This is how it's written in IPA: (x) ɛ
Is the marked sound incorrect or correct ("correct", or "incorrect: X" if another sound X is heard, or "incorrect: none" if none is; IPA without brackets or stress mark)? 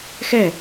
correct